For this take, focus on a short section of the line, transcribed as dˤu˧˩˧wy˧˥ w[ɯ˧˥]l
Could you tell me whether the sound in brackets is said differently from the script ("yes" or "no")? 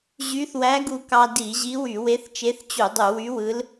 no